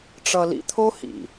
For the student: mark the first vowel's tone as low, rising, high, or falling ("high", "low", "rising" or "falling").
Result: low